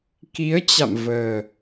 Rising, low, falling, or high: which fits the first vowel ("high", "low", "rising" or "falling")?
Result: rising